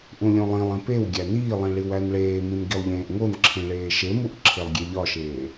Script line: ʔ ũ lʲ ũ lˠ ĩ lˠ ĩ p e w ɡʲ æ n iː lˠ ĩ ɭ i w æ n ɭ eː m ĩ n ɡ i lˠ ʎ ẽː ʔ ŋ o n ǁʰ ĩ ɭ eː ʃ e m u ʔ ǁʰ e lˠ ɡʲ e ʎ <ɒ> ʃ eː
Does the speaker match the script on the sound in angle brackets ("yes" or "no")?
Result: yes